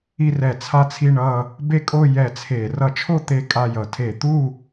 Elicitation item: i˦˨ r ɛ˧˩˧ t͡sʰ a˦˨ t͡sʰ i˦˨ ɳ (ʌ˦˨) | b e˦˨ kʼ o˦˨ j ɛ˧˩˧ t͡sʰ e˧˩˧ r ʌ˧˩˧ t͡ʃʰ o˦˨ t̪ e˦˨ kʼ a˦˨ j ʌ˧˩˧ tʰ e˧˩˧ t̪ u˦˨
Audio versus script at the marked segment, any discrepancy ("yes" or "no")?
no